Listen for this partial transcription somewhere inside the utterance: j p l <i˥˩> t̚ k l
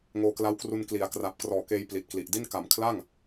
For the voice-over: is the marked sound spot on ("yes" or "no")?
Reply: no